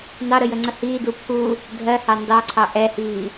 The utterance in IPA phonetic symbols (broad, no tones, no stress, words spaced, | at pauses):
nɑɾəjəŋ͡ǀə hiːdu pʰu | dʱɜhɑ ndɑǀʰɑ ʔɛhiː